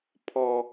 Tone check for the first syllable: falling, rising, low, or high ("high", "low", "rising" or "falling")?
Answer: high